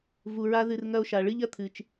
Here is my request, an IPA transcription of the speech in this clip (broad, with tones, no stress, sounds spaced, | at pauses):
v u˨ ɹ a˦ ð ɨ˨ r ŋ ɐ˦ o̯ ʃ a˨ ɭ ɨ˦ ʎ ɐ˦ t̪ʰ ɨ˨ t͡ʃ